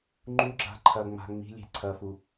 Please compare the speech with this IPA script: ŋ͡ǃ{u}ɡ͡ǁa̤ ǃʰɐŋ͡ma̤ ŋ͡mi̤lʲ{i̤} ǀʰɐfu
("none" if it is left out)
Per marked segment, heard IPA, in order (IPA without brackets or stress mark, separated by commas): u, e̤